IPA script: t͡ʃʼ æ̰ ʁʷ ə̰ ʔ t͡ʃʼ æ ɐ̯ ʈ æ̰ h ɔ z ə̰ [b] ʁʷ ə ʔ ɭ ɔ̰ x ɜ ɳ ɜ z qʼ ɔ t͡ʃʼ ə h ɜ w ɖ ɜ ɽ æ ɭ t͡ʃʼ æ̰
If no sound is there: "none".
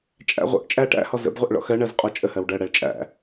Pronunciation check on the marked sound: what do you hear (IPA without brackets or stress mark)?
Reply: b